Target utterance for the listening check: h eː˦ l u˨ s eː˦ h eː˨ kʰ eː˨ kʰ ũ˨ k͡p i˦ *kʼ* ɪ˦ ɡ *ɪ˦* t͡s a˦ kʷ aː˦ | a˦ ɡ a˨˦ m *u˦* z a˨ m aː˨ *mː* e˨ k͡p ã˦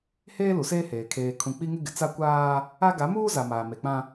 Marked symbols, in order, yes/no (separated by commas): no, no, no, no